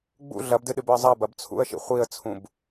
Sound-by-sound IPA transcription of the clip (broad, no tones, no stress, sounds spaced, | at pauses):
ɡ͡b ṵ ɮ ɐ b d ɨ ɗ ɨ b ɵ ə̯ zˤ ɐ b ɐ b t͡sʰ ṵ ə̯ ʃ ḭ χʷ i ə̯ t͡sʰ ũ b